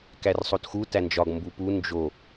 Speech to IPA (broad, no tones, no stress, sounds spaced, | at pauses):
k æ r sˤ o t x u t æ n d͡ʒ ɒ ɡ m b u p u n d͡ʒ o